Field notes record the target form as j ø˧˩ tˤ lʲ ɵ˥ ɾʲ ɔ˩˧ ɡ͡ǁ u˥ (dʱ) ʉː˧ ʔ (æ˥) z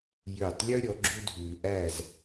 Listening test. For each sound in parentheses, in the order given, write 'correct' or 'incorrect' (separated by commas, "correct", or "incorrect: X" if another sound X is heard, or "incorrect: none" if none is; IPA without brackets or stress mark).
correct, incorrect: æ˥˧